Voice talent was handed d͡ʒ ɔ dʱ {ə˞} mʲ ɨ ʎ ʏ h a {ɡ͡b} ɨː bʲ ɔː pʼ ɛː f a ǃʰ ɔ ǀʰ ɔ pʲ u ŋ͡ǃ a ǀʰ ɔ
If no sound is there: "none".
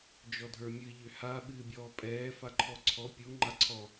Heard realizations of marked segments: ə˞, ɓ

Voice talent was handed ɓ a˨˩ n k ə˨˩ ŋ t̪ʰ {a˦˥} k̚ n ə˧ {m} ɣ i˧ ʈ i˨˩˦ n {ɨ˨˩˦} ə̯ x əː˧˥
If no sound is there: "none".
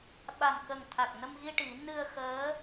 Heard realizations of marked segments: a˨˩, m, ɨ˧

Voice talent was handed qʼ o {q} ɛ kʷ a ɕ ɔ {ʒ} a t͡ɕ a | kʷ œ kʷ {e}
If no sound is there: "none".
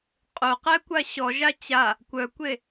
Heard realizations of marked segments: q, ʒ, e

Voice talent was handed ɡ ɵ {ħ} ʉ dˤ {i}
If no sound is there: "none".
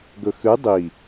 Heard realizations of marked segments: x, i

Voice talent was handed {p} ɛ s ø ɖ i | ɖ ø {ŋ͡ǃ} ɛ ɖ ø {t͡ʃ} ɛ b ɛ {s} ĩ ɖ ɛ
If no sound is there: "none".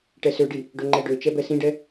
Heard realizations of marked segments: ʈ, ŋ͡ǃ, t͡ʃ, s

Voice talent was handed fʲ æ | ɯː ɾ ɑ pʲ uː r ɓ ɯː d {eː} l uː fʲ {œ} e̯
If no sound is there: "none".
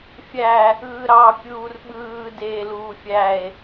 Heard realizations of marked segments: eː, æ

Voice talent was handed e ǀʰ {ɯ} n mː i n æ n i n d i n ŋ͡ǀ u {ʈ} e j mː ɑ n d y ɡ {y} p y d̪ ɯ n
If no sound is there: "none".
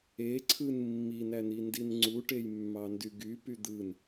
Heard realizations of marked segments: ɯ, ʈ, y

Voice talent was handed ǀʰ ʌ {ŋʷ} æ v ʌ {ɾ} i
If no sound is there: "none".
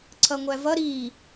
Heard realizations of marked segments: ŋʷ, ɾ

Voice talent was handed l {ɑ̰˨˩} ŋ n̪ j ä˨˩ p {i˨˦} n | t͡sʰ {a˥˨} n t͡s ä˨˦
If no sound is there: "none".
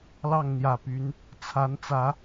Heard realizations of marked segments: ɑ˥˨, y˨˦, a˨˦

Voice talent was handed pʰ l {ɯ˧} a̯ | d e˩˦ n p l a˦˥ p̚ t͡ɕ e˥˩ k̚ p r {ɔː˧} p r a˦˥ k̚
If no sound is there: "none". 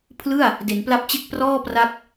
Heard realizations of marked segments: ɯ˥˩, ɔː˥˩

